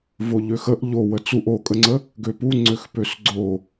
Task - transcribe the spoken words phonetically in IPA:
voʎøxəʔ ʎo wət͡suʔ okʼəŋ͡ǀə | ɡøpuŋ͡ǀøx pøsɡ͡ǀo

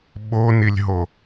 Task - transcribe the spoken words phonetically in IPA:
ɓonilʲɦo

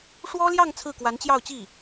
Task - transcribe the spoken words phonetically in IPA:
ʂwɔ˥ljɑ˥˧ŋ t͡sʰɹ̩˥˩kwa˧˥nt͡ɕjɑ˥˧ʊ̯t͡ɕi˥˩

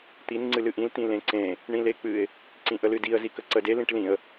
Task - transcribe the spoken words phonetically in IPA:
t̪in ŋ͡ǀɨlɨʔĩl t̪ĩlẽǀẽ | ɳĩlek͡pɨɪ̯ | ǀĩʔəlɨdiə̯ zikəǀəde lĩʈlĩə̯

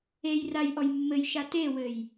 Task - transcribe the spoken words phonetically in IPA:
ejraj ʔɔjmːɘjʃa tewɘj

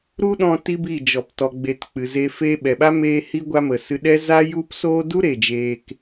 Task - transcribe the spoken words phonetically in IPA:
ɾu˦ɗɔ̃˧ ti˦bi˦˨ d͡ʒɔ˨ptɔ˨ɡ͡be˨t k͡pɨ˨ze˧ feː˧ɓɛ˨ɓa˦ meː˧hi˧ɡʷa˧mə˨ sɨ˧ɗɛ˦ za˦ju˦psoː˦ du˦ ɾe˨d͡ʒeː˧k

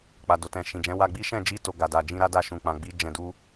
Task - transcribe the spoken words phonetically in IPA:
k͡pa˨do˨tɛ̃˨ʃĩ˨ d͡ʒɛ̃˨˦wa˧ɡ͡bi˦ ʃɛ̃˦˨d͡ʒi˧ to˧ɡa˨ da˨ d͡ʒĩ˧ɾa˦da˦˨ ʃũ˨ k͡pã˨ɡ͡bi˨˦ d͡ʒɛ̃˧du˦

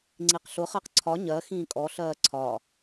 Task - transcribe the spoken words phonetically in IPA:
ŋ͡ǀiqɬʊ χɜqǀʰɒ ɲɜ xĩːkʼɔ ɬɜːǀʰɒ

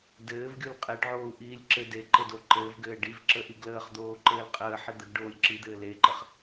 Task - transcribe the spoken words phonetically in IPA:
dɘːvɡʲul qʼeɖʕoːu̯ʔiːlʲ ǁɘ deǃɘdo ǃɘːvɡɘː ɖivǁəʔi ɡləːχd̪oːǃɘːl qʼəːħi d̪əɡɖoːlʲ ǁid̪ɘː leǃəχ

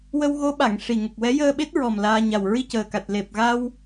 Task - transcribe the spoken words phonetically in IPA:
wə˧wɣo˧˥ɓa˨˩˨ŋ ʂi˨˩ŋə˨˩k̚wɛ˧˥ jəː˧ɓe˦˥t̚ɹɔ˨˩m laː˧ ɲa˨˩wɹi˧cəː˨˩ka˨˩t̚ le˨˩p̚ɣa˧w

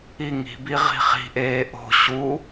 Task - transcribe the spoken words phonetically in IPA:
iŋi̤bi ʁi̤χi̤ʔeː ʔo̤ ɕu

